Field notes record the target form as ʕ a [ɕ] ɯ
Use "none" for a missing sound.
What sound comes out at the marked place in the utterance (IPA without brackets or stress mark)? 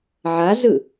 z